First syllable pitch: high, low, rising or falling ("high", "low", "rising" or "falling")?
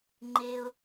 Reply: high